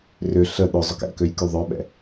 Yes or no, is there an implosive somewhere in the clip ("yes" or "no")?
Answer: yes